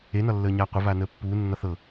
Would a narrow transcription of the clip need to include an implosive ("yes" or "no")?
no